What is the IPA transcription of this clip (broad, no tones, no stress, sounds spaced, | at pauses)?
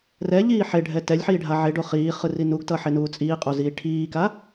r ɛ ʎ iː ħ e ɖʱ ɛ t ɛ lʲ ħ iː ɖʱ a ʕ e ɖ o χ iː χ ɯ r i n u ɡ t ʌ ħ e n uː t͡sʼ iː qʼ o z iː ʈʰ iː k a